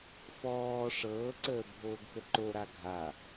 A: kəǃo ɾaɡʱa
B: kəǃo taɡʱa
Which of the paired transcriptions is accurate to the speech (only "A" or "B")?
A